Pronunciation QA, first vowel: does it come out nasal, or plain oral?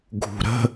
oral